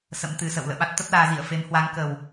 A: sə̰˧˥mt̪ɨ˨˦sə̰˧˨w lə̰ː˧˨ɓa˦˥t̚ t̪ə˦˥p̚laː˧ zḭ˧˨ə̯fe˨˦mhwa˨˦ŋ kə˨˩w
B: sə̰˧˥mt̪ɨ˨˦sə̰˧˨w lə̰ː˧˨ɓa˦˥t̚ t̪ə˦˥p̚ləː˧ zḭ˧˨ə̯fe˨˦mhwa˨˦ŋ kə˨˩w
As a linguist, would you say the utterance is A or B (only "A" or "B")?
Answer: A